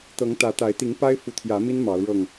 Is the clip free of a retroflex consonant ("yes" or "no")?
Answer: no